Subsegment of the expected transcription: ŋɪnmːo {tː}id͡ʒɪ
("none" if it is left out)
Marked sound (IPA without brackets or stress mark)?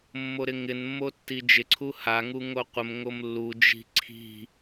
tː